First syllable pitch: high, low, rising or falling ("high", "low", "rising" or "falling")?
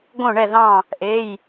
falling